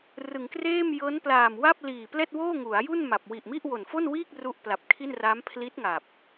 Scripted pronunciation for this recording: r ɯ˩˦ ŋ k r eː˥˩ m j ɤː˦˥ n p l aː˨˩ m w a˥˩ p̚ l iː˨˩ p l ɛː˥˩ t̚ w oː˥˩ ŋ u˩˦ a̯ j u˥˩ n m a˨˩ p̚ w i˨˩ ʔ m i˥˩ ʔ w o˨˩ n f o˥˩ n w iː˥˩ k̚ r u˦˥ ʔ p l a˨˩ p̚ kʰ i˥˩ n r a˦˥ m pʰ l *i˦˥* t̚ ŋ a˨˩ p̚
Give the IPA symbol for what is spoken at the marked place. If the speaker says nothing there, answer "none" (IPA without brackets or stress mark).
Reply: i˦˥